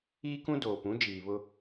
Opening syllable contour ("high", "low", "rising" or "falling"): high